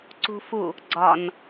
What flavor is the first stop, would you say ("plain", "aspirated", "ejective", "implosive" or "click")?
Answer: click